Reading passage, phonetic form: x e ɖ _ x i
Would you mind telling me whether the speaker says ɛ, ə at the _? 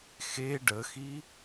ə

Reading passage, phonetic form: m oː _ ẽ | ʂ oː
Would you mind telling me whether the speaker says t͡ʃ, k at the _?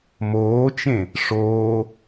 t͡ʃ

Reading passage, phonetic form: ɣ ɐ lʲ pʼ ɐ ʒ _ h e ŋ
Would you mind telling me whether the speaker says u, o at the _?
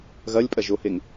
o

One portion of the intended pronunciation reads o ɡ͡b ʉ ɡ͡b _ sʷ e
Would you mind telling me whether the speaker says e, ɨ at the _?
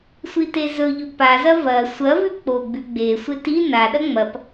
e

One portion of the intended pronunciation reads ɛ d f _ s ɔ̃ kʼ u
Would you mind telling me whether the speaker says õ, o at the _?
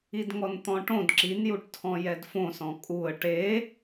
õ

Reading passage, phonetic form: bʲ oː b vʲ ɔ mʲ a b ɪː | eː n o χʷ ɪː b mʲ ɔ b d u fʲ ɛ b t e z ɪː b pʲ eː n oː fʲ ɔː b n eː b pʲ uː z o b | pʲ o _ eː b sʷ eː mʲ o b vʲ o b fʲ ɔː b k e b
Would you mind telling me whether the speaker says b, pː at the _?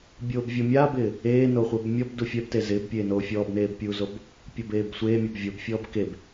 b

